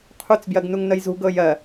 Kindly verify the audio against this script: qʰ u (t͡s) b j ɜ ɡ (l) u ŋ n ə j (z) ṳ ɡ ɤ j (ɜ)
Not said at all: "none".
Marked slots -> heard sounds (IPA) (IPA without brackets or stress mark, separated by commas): t͡s, n, z, ɜ